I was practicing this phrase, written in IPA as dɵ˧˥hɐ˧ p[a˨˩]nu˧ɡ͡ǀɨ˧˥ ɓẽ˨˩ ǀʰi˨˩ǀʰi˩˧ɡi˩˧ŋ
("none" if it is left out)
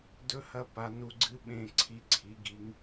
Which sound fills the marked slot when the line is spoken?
a˩˧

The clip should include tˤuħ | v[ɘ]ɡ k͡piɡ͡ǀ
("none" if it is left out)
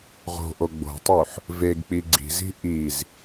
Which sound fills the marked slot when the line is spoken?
e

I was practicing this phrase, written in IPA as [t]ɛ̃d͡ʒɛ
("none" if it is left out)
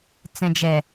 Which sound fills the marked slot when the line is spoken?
t͡s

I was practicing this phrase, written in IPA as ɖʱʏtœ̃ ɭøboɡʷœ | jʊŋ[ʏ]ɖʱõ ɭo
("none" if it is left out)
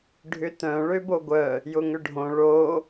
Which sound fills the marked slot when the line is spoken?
ʏ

